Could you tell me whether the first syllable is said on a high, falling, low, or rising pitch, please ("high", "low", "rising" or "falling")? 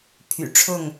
low